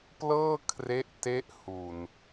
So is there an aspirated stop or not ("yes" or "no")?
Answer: yes